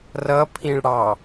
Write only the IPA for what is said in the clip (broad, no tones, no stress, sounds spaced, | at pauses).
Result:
r ʌ pʰ ĩ ɭ ɽ ɑ